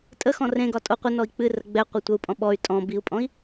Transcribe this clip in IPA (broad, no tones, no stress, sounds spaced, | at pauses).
tʼ ə x ɔ̃ r ẽ ɡ ɒ tʼ o qʷ ə n ɔ i̯ k͡p ɨ r ə ɡ͡b ɛ qʷ ɛ tʷ ə u̯ pʼ ɔ̃ ɓ ɔ y̯ tʼ ɔ̃ b i u̯ pʼ ɔ̃ i̯